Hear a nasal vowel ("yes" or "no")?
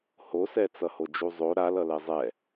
no